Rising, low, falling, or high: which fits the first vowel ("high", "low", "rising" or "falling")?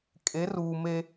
rising